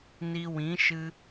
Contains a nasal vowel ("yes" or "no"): yes